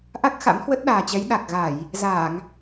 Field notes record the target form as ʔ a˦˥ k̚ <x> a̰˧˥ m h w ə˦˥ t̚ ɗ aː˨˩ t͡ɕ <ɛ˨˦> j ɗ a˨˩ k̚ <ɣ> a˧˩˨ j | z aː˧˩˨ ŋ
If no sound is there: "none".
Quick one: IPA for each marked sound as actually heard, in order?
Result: x, ɛ˨˦, ɣ

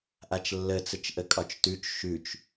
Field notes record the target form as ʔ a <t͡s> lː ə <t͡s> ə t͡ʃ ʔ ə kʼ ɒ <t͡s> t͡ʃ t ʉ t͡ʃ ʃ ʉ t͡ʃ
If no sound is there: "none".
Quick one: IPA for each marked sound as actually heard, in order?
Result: t͡ʃ, t͡s, none

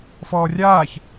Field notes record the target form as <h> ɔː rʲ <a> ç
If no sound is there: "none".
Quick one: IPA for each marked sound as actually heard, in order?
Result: f, aː

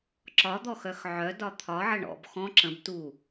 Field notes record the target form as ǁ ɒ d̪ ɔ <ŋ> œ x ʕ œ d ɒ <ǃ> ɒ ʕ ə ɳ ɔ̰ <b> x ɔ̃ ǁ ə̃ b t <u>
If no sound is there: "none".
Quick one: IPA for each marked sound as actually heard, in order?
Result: x, t̪ʰ, b, u

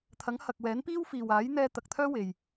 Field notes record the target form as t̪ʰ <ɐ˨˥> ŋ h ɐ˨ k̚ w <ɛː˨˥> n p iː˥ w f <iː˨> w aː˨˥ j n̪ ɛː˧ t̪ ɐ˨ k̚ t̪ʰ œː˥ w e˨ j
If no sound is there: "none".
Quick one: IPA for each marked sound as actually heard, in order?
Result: ɐ˨˥, ɛː˨˥, iː˨

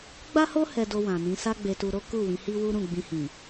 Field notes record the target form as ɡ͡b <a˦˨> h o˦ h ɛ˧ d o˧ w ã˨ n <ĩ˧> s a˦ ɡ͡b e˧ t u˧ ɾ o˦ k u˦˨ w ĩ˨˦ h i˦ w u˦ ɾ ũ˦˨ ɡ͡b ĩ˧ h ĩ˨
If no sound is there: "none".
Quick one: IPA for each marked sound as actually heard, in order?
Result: a˦, ĩ˨˦

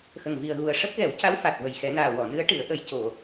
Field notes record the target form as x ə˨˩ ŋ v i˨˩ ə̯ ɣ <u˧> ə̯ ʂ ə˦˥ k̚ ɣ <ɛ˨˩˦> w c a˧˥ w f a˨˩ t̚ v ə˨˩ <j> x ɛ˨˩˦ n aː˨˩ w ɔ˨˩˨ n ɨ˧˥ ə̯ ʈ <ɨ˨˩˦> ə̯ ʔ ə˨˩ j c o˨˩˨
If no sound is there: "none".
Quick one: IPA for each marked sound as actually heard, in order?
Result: u˨˩, ɛ˨˩˦, j, ɨ˨˩˦

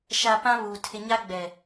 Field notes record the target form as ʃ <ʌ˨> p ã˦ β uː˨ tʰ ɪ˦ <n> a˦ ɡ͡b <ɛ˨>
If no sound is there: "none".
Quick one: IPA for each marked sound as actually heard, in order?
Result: a˨, ɲ, ɛ˨

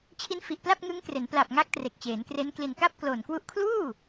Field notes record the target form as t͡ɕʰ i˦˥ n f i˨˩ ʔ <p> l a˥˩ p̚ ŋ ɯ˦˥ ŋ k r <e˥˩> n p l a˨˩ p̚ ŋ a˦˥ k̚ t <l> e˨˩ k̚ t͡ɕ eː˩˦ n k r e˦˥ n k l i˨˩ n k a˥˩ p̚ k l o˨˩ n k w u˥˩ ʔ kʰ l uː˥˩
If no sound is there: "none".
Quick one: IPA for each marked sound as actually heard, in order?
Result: p, e˩˦, r

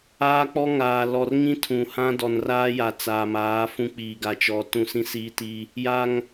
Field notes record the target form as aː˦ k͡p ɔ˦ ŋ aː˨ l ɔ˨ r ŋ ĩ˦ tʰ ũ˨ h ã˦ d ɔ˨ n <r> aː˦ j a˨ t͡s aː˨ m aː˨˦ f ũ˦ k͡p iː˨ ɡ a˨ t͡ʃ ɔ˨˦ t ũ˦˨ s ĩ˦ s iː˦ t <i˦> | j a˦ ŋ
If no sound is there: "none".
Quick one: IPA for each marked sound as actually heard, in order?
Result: r, i˦

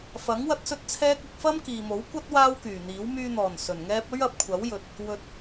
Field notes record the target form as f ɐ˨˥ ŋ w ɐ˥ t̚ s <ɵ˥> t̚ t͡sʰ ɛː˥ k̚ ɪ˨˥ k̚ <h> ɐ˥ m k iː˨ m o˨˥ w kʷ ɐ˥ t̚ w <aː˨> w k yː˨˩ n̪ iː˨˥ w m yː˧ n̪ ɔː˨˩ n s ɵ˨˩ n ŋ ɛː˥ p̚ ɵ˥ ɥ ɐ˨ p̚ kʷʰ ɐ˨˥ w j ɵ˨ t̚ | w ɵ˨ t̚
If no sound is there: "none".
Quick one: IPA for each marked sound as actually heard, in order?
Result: ɵ˥, f, aː˥

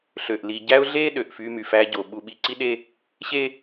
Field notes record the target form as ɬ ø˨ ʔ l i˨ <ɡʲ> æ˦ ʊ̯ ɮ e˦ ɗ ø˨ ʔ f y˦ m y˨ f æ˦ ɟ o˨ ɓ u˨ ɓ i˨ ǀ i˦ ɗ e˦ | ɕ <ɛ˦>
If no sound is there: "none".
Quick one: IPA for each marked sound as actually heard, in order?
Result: ɟ, e˦

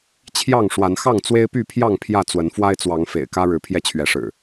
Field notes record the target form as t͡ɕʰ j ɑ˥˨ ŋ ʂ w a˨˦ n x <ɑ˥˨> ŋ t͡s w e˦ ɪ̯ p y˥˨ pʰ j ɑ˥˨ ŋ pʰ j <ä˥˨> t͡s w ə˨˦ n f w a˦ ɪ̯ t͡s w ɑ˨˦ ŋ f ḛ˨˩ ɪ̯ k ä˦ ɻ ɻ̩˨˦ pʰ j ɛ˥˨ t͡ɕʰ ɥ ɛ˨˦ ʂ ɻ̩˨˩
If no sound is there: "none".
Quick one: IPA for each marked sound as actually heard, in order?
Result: ɑ˥˨, ä˥˨

